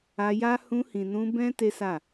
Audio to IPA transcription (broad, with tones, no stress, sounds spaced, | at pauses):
a˧ j a˦ h ũ˧ h ĩ˨ n ũ˧ b ɛ̃˦ t e˦ s a˦˨